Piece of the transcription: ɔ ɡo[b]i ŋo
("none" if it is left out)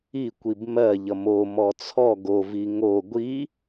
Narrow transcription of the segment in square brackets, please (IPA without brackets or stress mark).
v